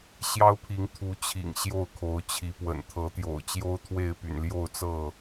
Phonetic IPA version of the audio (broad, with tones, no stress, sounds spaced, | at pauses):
ɕ j ɑ˦ ʊ̯ pʰ i˨˦ ŋ t̪ʰ u˨˦ t͡ɕʰ ḭ˨˩ ŋ ɕ j o˥˨ ʊ̯ kʰ o˨˦ ʊ̯ t͡ɕʰ i˨˦ p w ə̰˨˩ n t̪ʰ ɤ˨˦ t̪ j o̰˨˩ ʊ̯ t͡ɕ j o˦ ʊ̯ t̪ʰ w e˥˨ ɪ̯ p y̰˨˩ n l j o˥˨ ʊ̯ t͡s ɤ˥˨